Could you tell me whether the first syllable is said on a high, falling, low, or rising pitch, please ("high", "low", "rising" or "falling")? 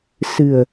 low